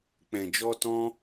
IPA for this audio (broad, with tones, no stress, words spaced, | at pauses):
k͡pɛ̃˨d͡ʒɔ˧ tɔ̃˦